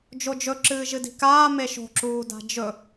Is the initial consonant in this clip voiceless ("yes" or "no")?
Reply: no